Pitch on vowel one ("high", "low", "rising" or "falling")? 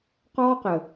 high